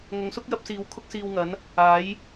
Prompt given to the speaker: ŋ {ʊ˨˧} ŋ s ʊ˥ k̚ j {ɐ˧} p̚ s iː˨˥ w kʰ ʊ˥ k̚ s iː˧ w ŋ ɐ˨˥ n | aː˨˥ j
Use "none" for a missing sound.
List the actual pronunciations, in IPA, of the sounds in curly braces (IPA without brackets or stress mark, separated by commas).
ʊ˨˧, ɐ˨˥